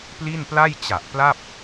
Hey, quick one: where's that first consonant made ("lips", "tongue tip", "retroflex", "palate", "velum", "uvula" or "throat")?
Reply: lips